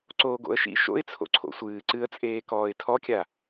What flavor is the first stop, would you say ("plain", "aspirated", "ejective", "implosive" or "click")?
click